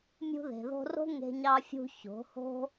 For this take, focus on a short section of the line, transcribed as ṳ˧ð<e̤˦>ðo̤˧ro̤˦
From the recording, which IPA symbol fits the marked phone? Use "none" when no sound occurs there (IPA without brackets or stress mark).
e̤˨